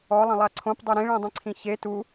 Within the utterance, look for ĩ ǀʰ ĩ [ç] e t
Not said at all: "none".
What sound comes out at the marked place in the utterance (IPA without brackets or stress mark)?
ç